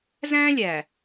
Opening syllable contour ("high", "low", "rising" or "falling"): high